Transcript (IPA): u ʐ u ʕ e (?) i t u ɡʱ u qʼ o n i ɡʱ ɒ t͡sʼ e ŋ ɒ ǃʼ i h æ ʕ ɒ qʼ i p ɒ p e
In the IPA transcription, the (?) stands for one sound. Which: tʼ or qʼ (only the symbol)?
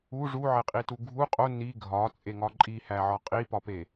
qʼ